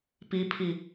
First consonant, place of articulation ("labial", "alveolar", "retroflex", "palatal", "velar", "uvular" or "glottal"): labial